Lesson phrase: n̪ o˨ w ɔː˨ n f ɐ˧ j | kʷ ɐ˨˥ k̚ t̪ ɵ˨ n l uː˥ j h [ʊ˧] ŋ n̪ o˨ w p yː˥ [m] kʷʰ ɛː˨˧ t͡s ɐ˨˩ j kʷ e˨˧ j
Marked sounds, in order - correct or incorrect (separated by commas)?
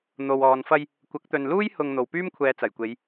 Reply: correct, correct